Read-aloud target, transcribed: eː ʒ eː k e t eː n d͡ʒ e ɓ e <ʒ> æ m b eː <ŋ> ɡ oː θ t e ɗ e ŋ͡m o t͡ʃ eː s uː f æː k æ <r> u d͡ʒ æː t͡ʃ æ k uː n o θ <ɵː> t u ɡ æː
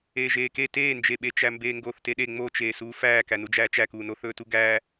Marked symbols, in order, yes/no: no, yes, no, yes

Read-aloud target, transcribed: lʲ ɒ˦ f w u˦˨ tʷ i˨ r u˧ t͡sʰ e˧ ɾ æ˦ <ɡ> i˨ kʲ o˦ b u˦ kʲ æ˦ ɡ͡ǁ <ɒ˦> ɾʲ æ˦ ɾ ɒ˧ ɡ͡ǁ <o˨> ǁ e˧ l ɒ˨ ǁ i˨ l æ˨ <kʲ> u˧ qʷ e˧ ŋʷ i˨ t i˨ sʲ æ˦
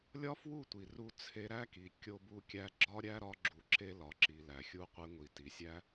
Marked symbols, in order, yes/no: no, yes, no, no

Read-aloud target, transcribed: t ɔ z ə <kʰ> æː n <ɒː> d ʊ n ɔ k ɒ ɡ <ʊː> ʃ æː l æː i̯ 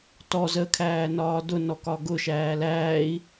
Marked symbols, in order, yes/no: yes, yes, no

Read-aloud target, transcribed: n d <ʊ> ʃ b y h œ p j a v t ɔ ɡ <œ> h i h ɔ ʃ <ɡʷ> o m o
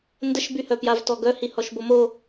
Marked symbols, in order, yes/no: no, yes, no

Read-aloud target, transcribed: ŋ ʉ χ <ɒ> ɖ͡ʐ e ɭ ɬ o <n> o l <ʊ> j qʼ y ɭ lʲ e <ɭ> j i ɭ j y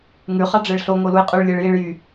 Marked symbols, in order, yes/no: no, no, no, yes

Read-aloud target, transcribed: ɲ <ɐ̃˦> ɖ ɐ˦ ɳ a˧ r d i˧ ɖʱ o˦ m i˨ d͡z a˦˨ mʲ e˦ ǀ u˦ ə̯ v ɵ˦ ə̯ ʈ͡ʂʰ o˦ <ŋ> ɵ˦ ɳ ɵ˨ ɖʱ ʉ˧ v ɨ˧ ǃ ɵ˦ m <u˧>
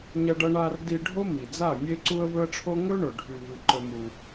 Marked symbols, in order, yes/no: no, yes, yes

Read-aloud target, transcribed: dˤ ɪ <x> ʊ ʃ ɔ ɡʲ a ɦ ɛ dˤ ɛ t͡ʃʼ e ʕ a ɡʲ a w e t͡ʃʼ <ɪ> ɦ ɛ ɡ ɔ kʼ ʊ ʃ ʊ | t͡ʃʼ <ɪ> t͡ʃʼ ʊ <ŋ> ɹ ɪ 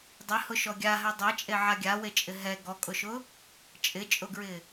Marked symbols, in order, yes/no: no, yes, yes, no

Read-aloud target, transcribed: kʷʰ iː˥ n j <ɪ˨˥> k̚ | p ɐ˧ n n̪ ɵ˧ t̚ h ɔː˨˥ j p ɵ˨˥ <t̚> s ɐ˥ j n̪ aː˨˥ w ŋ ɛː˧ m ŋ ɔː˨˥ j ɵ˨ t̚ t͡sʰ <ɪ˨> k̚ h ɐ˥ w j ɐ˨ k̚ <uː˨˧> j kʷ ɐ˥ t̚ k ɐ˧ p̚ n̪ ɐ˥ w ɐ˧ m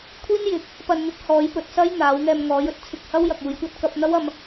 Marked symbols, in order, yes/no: yes, yes, no, yes

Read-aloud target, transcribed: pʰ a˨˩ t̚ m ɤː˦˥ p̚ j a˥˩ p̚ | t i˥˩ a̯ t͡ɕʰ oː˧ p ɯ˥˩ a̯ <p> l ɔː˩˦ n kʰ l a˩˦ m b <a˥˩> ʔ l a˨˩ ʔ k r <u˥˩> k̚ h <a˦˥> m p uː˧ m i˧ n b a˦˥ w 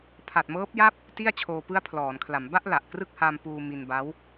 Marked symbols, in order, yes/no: no, yes, no, no

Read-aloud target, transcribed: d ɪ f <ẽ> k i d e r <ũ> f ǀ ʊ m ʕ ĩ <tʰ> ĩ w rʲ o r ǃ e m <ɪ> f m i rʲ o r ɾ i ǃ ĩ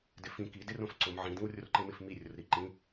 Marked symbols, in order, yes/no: no, no, no, yes

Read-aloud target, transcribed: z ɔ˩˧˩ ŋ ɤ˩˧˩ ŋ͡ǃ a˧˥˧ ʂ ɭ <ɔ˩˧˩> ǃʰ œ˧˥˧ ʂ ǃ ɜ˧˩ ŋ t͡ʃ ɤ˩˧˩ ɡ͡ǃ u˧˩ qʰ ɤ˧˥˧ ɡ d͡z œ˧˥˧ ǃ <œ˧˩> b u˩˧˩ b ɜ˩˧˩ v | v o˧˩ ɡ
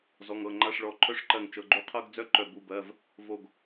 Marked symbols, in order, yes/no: yes, yes

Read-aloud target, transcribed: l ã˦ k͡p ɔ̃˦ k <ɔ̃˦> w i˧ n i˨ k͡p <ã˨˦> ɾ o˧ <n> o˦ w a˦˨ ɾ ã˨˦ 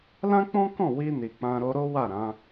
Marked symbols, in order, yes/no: no, no, no

